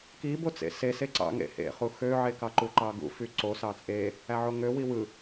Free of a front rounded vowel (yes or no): no